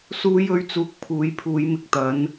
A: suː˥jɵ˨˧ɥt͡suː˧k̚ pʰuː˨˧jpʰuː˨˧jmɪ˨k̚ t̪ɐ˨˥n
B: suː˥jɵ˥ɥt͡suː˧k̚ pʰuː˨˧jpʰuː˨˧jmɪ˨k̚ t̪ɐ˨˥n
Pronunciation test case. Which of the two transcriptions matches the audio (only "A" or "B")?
B